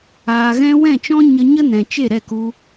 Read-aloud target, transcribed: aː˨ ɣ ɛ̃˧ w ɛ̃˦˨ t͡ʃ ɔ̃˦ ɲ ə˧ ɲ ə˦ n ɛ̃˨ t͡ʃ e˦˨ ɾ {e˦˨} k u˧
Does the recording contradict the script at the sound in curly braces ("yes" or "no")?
yes